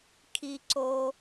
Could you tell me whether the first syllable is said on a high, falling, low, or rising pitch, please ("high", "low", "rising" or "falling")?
high